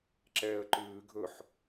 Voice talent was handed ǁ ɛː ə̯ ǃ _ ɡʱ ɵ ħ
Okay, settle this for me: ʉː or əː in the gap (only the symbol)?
ʉː